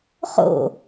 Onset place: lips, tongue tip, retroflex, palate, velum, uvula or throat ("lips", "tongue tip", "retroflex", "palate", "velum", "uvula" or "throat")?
uvula